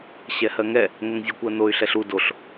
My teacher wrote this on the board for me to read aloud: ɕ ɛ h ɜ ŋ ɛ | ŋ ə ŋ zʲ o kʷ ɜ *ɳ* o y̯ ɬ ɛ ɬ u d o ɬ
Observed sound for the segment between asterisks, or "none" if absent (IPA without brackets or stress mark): n